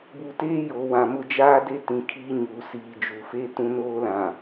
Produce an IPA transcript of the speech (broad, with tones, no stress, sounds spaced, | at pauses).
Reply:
b u˨ t eː˦ j o˨ w ã˨ m ʊ˦ d͡ʒ aː˦ d e˦ t ĩ˨ kʰ iː˦ ɲ uː˨ s iː˨ d͡ʒ u˨ f e˦ t ũ˦ n oː˦ l ã˨